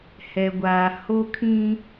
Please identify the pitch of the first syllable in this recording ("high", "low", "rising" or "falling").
low